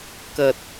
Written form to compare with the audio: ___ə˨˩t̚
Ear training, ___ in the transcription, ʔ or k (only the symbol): k